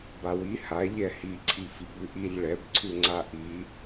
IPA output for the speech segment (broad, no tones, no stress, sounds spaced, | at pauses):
b a w i h a ʎ ɛ h i ǀʰ i f i b ʉ ʔ i ʎ ɭ ɛ b ǀʰ ʉ ŋ͡ǀ a ʔ i